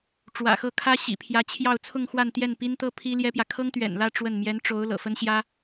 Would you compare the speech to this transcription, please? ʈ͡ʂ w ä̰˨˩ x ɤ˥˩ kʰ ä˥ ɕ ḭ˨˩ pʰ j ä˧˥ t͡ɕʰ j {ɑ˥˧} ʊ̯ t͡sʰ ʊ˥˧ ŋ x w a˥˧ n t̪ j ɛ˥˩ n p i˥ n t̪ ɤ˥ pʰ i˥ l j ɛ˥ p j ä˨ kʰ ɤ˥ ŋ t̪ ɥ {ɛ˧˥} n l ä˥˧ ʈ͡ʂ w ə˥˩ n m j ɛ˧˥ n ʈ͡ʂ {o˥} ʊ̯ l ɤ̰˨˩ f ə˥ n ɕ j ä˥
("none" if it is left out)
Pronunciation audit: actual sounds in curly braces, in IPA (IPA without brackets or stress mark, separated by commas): ɑ˥˧, ɛ̰˨˩, o˧˥